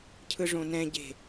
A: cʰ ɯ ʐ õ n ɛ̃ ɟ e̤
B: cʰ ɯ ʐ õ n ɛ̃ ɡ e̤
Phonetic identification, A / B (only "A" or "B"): A